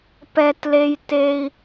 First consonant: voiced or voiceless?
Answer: voiceless